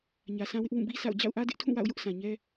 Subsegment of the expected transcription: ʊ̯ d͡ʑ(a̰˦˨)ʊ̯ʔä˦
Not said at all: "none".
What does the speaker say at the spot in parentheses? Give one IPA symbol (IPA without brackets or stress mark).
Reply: a̰˦˨